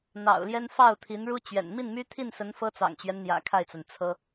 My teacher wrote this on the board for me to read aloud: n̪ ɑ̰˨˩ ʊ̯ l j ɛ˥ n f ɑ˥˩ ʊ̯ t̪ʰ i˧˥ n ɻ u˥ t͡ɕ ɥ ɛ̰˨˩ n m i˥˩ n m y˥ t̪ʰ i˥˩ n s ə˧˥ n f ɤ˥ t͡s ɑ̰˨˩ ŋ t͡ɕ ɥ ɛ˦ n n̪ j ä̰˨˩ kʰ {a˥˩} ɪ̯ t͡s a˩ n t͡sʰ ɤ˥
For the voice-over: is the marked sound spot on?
yes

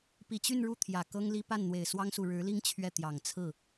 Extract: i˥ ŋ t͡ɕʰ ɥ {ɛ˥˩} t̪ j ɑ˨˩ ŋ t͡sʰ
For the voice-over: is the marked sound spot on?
yes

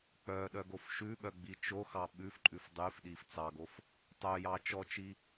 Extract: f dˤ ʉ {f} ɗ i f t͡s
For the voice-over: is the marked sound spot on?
yes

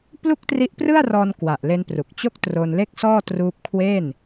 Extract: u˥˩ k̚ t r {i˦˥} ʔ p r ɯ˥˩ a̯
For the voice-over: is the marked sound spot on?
yes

